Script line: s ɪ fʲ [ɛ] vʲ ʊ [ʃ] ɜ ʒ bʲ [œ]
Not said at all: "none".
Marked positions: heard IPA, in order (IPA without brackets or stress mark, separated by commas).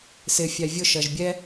æ, ʃ, ɛ